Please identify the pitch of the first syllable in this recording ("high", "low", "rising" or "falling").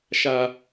high